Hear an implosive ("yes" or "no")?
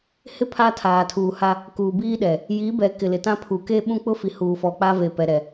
yes